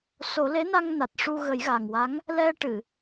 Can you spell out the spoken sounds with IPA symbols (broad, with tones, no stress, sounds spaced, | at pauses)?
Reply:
s o˨˩˦ l e˧˥ n a˧ ŋ n a˨˩ t̚ ʂ u˧ ɣ ə˨˩˦ j ɣ a˨˩ ŋ w a˧˥ ŋ | l ɛ˧ ʈ ɨ˨˩˨